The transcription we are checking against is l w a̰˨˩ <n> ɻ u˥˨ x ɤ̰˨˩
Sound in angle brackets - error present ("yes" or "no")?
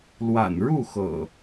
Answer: no